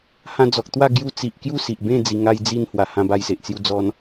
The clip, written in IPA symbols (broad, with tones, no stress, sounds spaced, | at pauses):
h ã˧ d͡z ɔ˨ k̚ t̪ w a˥˧ ɡ j u˧ t͡s i˨ ʔ k j u˦ s i˨ ʔ b ẽ˥˧ d͡z i˧ ŋ a˧ j d͡z i˧ n h w a˨˩ h ã˧ b a˧ j s e˨ ʔ t͡s j u˧ d͡z ɔ˧ n